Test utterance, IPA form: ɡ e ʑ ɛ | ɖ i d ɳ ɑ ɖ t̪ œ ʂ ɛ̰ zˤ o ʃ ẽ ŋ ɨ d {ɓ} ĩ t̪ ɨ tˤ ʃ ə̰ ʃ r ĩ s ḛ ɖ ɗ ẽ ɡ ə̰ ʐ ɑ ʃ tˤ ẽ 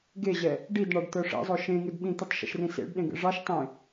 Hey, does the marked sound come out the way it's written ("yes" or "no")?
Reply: yes